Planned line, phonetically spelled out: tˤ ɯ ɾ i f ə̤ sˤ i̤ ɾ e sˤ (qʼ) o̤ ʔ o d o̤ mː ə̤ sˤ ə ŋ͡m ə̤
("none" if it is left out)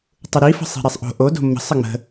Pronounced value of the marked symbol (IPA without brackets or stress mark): ʔ